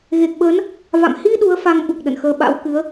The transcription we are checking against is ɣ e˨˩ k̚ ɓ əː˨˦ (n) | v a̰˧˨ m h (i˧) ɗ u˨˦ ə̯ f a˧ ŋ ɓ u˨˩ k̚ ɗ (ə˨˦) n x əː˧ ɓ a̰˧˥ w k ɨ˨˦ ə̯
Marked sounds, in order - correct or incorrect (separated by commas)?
correct, correct, incorrect